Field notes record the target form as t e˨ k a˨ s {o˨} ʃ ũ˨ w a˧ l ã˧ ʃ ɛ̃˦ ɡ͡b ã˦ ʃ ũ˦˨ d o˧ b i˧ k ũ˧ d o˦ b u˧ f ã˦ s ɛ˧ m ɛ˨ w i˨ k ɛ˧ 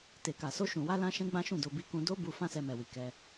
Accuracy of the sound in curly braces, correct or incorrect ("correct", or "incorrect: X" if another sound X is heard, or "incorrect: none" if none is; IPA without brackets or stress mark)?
incorrect: o˧